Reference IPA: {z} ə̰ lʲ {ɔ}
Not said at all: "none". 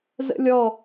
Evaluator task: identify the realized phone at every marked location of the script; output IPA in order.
z, ɔ

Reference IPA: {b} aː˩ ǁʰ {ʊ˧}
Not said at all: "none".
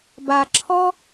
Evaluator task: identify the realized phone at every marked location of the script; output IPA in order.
b, ɔ˧

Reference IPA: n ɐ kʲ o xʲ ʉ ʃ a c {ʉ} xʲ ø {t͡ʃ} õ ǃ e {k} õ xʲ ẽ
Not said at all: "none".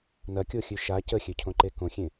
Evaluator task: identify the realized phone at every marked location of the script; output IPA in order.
ə, cʰ, k

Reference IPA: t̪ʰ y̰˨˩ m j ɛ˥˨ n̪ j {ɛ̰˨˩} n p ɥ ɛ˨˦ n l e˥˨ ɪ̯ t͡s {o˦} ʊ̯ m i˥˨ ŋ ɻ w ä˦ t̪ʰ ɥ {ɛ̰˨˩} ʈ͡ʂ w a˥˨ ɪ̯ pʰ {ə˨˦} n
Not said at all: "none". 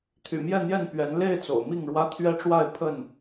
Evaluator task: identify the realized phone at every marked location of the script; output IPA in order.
ɛ˥˨, o̰˨˩, ɛ˦, ə˥˨

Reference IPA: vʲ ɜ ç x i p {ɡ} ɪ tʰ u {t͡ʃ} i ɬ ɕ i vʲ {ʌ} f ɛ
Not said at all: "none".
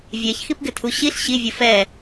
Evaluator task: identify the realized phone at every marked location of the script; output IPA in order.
ɡ, ɕ, ʌ

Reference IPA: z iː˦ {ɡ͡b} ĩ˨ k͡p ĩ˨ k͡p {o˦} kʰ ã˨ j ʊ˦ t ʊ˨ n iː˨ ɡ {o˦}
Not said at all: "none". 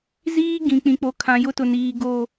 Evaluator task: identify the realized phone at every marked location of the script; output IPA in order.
ɡ, o˨, o˦˨

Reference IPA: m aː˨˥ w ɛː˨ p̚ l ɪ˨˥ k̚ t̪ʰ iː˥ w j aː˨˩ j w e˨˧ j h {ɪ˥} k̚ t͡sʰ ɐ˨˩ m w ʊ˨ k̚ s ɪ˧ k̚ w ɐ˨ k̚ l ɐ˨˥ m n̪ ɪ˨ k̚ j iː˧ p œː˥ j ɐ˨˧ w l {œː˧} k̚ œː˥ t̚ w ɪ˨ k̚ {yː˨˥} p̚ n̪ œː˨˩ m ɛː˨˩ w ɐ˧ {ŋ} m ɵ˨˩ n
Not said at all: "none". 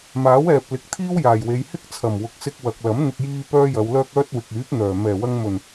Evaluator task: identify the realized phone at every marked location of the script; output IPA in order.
ɪ˥, œː˥, yː˨˥, ŋ

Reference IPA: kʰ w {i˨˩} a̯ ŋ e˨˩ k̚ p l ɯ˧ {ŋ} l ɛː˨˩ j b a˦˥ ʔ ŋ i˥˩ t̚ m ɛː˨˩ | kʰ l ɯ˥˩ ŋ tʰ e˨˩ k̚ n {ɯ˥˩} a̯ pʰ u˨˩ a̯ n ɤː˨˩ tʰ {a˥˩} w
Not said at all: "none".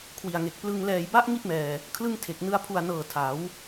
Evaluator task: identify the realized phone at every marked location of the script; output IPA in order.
i˨˩, ŋ, ɯ˧, a˩˦

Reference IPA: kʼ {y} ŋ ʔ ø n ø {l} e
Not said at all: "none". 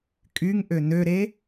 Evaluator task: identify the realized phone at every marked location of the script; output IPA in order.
y, ɾ

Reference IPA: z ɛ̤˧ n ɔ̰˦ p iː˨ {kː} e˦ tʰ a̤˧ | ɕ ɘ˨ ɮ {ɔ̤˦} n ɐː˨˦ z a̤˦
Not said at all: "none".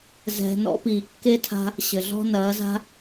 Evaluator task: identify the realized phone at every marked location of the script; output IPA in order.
kː, ɔ̤˦

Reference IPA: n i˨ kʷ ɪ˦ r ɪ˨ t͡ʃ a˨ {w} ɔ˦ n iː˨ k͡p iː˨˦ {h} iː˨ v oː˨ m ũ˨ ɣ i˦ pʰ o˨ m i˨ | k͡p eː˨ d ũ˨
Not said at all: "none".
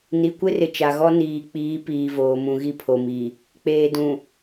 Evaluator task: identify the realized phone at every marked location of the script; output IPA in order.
ɣ, p

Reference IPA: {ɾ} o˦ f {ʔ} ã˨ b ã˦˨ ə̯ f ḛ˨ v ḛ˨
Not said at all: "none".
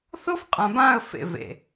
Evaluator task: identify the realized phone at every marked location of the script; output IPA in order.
θ, qʼ

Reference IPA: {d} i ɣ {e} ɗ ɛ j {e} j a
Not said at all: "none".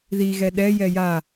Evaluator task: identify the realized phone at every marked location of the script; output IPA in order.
ð, ɛ, ɛ

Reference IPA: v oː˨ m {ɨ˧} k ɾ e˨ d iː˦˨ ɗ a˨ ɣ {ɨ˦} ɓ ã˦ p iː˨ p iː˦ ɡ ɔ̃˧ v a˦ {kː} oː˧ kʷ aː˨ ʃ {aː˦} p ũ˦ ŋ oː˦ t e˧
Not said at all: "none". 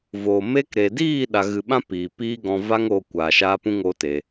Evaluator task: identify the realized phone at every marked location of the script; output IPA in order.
e˧, ɨ˨, ŋ, aː˦

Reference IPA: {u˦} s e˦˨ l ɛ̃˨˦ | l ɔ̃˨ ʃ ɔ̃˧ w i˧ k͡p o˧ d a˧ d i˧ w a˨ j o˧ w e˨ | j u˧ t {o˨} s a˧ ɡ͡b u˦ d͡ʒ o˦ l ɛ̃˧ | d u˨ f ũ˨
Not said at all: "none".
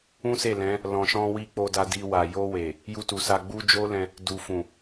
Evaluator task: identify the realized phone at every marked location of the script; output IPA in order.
ũ˦, u˨

